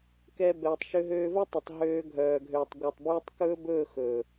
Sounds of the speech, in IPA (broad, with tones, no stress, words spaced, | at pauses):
kɛ˦bɛː˧tˤ ʃø˧ɦøː˧vɵ˦tˤe˨tˤ ɦøː˧ɡʱœː˨ɡʱøː˨tˤ ɡʷœ˨tˤbyː˧tˤkɵː˦bɵː˦˨ xɵ˨